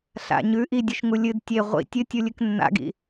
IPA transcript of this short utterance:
ɬ a̰ ɲ ʉ ʔ i dʲ ɨ ʃ ŋ u lʲ ɨ d tʲ e ʁʷ ḭ tʲ ɨ tʲ u lʲ ɨ k nː a̰ ɡ ḭ

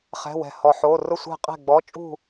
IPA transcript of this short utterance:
χ ɛ̤˧˥˧ w ɛ̤˧˩ h ɔ˧˩ ħ o˧˥˧ r ʊ˥˨ sʷ ɛ̤˥˨ qʼ ɛ̤˥˨ ɡ͡b ɔ˧˥˧ t͡ʃʼ ṳ˥˨

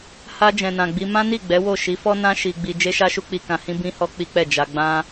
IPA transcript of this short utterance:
h a˧ d͡ʒ ɛ̃˨ n ã˨ ɡ͡b i˧ m ã˦ n i˦˨ ɡ͡b ɛ˨˦ w o˦˨ ʃ i˨˦ f ɔ˦ n ã˦ ʃ i˧ ɡ͡b i˧ d͡ʒ e˦ ʃ a˦ ʃ u˦ k͡p i˧ k ã˧ h ĩ˦ b ĩ˦ h ɔ˦ k͡p i˦ k͡p ɛ˦˨ d͡ʒ a˧ ɡ͡b ã˦

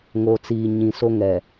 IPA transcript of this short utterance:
ŋ o˨ t͡s iː˨ ɲ ĩ˨ s o˦ ŋ ɛ˨

